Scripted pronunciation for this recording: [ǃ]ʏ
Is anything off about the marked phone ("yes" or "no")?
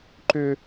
no